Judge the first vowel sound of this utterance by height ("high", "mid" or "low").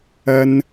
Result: low